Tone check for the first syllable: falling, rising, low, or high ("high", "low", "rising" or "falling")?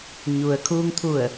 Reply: low